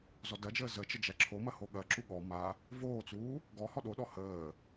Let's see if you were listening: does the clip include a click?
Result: yes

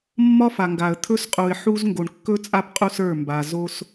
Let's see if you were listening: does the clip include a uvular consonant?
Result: yes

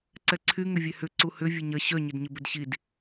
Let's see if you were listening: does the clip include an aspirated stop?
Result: yes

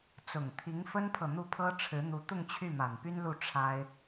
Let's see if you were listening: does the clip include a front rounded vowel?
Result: yes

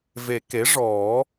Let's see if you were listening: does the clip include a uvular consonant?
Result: no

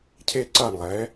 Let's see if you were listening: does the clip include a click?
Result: yes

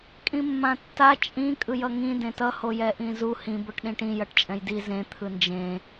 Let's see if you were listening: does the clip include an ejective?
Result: yes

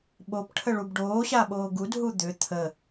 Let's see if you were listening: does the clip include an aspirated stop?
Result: yes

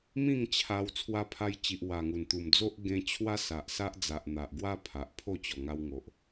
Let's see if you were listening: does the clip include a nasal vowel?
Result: yes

